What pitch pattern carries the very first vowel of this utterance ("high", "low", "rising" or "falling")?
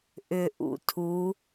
low